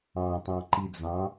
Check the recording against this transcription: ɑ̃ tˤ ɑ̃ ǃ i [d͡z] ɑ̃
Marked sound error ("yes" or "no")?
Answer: no